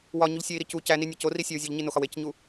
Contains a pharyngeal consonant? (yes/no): no